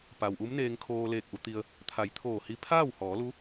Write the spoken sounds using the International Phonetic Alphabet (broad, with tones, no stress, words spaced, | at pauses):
pa˩wʔu˧˥mneː˧ŋ kʰoː˧leː˧˩k̚ʔu˩˧t̪i˧ə̯ | t̪ʰa˩˧jt̪ʰoː˧˩hi˧ pʰaː˥˨whɔː˩˧lu˧˥